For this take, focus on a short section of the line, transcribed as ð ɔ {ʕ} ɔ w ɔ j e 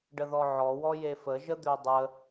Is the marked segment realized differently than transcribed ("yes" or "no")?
no